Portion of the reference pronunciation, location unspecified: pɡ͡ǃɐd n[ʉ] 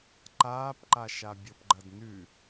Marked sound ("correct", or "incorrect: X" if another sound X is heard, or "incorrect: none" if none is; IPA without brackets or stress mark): correct